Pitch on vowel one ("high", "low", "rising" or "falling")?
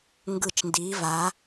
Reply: low